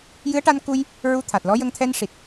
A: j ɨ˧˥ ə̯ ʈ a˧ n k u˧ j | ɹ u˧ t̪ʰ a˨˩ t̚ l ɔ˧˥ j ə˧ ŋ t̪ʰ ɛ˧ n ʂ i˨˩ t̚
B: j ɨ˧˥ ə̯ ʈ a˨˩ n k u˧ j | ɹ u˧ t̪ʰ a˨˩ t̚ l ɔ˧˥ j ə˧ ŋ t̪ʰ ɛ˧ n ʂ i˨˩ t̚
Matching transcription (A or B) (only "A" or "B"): A